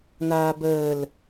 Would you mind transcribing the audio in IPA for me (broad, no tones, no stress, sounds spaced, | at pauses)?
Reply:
n̪ aː b əː l